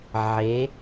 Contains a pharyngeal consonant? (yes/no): yes